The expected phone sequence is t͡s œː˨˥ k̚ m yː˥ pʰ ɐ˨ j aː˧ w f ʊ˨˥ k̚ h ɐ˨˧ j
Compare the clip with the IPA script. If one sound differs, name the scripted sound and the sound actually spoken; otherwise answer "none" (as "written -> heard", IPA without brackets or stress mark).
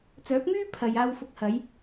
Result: none